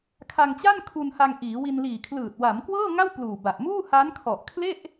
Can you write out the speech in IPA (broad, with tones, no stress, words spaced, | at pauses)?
kʰa˧ŋt͡ɕa˥˩nkʰu˧nha˧ŋ ʔiː˩˦wi˧nliː˨˩kʰlɯː˨˩t̚ wa˩˦mkwɤː˥˩ŋa˥˩w pluː˨˩ba˨˩ʔ muː˥˩ha˦˥nkʰɔ˨˩ʔ kʰle˥˩ʔ